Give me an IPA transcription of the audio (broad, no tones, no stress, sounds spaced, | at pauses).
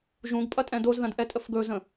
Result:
ʒ ũ ɡ pʼ ɐ tʼ ɛ̃ d o z ð ɐ̃ d ʔ ɛ tʼ ə f ɡ ɵ z ə̃